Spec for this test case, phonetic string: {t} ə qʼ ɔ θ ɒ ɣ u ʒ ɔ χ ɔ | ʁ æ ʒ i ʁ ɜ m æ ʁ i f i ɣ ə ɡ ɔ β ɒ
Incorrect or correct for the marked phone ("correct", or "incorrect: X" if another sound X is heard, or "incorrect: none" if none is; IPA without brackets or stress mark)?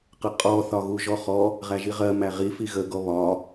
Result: incorrect: q